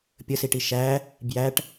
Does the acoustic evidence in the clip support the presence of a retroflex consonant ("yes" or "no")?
yes